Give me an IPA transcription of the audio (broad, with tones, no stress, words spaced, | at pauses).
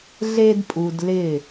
ɮe˧dpʼu˨d lɪ˦˨